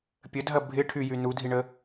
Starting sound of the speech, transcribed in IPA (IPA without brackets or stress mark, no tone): pʲ